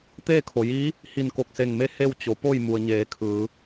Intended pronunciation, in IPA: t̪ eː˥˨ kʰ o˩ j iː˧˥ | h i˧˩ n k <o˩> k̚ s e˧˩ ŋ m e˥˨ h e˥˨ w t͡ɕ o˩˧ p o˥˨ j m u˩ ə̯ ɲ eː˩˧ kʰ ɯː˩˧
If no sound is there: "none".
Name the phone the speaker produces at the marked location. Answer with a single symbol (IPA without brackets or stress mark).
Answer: o˧˩